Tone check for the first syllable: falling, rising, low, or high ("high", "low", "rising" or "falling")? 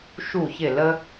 falling